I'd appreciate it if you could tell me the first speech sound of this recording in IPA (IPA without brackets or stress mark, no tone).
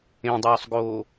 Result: ẽ